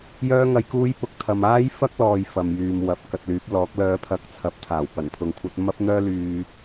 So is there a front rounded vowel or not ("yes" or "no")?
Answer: yes